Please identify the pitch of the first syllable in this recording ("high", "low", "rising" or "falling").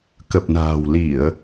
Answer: low